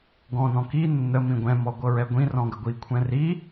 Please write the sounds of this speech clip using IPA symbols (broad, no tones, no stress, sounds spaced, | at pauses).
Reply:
ɡ ɔ̃ n ɔ̃ k i nː ə m ĩ ɡʷ ɛ̃ m ɔ ɡʷ ɤ ɹ ɛ ɡʷ ĩ r ɔ̃ ɡ ə ɡʷ i kʷʰ ɛ̃ r i